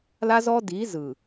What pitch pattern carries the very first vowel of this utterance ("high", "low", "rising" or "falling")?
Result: high